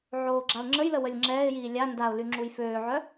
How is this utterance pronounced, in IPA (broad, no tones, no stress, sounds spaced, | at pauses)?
ʕ oː ɡ͡ǁ a ʊ̯ ŋ͡ǁ ə j l ə w ə lʲ ŋ͡ǁ ɛː ɪ̯ j iː lʲ a n d a ʊ̯ l y ŋ͡ǁ u j f øː ʕ œ